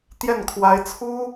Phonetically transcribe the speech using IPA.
t̪ j ɛ˥˩ n kʰ w a˧˥ ɪ̯ t͡sʰ u˥

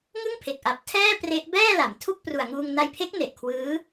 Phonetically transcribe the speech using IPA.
ŋ ɯ˥˩ ŋ pʰ e˨˩ k̚ ʔ a˨˩ p̚ tʰ ɛː˥˩ p r e˦˥ ʔ b ɛː˥˩ l a˩˦ m tʰ u˥˩ k̚ p r u˨˩ a̯ ŋ uː˧ ŋ n a˧ j pʰ e˦˥ k̚ n e˨˩ ʔ kʰ w ɯː˦˥

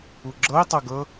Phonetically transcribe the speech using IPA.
u ɡ͡ǁ ɤ i̯ tˤ ɤ ɡ ɤ

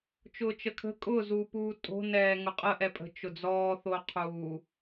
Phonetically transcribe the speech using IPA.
t͡ʃ ʊː t͡ʃ ə kʰ ə̤ kʼ ʊ z uː p uː tʼ o̤ n ɛː ŋ ʊ qʼ ə ʔ ɛ pʼ ə̤ t͡ʃ ʊ d͡z ɔː θ o qʰ uː

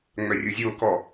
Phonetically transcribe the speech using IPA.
ŋ͡m œ rʲ o zʲ o k ɔ

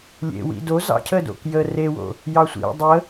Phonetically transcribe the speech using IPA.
lʲ ḛ w ḭ d o z ɑ̰ cʰ ə d o̰ k j ə r e w o̰ | j ɑ sʷ ḭ dˤ ə

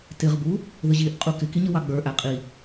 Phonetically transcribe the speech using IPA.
t ɪ ʁ b u | ð ə ʑ i ʔ qʼ u k ɪ k i ɲ ə w ɑ ɡ͡b ə˞ ʔ æ qʼ i

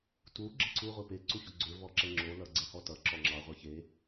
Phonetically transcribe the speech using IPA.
t u ɡ͡ǁ ə ǀ u ʁʷ e p e ǀ u ç o ɡ͡ǀ ø v ɔ ǁ ɛ ŋ͡ǁ o l ʌ ɡ͡ǀ ɛ h ɔ t ʌ ǁ ɔ ŋ͡ǁ ɑ ʁʷ ɛ ç e

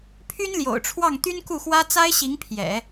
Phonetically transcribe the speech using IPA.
pʰ y˥ n l j o̰˨˩ ʊ̯ ʈ͡ʂʰ w ɑ˥˩ ŋ t̪ y˥ n k u˥˩ x w ä˥ t͡s a˥ ɪ̯ ɕ i˧˥ ŋ pʰ j ɛ̰˨˩˦

